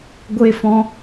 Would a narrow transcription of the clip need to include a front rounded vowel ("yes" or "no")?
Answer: no